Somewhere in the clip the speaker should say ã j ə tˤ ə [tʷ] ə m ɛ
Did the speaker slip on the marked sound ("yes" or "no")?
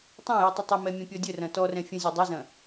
yes